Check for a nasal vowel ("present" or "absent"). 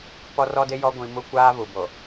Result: present